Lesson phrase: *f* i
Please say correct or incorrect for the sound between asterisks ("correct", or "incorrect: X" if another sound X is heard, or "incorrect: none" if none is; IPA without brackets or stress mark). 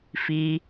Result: correct